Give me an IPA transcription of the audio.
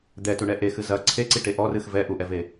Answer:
d̪ ɛ t u ɳ ɛ ʔ e x ɨ z ɐ ǀʰ e ǀ i ʈ e ʔ ɔ r ɨ x v ɛ ʔ u ʔ ɛ v e

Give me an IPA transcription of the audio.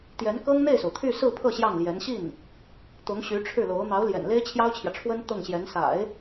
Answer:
t̪ j ɛ˧˥ n k ɤ˥ ŋ n̪ e˥˩ ɪ̯ s o˩ ʊ̯ t̪ʰ y˥˧ s ɹ̩˥˧ pʰ ɤ˥˧ ɕ j ɑ˥˩ ŋ l j ɛ˧˥ n ɕ i˥˩ n | t̪ ʊ˧˥ ŋ ɕ y˧˥ ʈ͡ʂʰ ɻ̩˥˩ l o˧˥ ʊ̯ n̪ ɑ˧˥ ʊ̯ l j ɛ̰˨˩ n l e˥ ɪ̯ t͡ɕʰ j ɑ˥ ʊ̯ t͡ɕʰ j ä˨ ʈ͡ʂʰ w ə˥ n t̪ ɤ˥˩ ŋ ɕ j ɛ˧˥ n s a̰˨˩˦ ɪ̯

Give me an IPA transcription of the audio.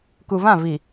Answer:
k u˨ v ã˦˨ v i˨

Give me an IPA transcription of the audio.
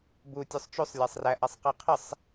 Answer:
b u tʲ u sˤ t͡ʃ u sˤ lʲ a sˤ r æ ʔ a sˤ q æ qʰ ə sˤ

